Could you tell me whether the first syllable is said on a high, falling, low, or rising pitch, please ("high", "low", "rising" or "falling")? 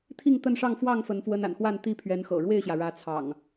falling